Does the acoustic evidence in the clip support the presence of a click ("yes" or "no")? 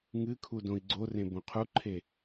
yes